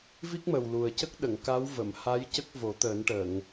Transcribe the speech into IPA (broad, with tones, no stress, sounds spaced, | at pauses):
v i˦˥ k̚ m ə˨˩ w l u˨˩ ə̯ c ə˦˥ k̚ ɗ ə˨˩˨ ŋ k a˧˥ w v ə˨˩˨ m h a˧˥ j c ə˦˥ k̚ v o˨˩˦ t̪ əː˨˩˦ n ʈ əː˨˩˨ ŋ